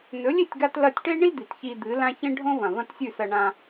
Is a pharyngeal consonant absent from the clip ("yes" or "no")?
yes